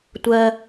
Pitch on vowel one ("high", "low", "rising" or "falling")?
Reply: low